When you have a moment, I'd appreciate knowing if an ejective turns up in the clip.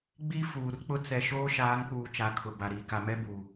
no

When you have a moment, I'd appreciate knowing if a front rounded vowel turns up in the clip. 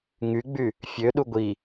yes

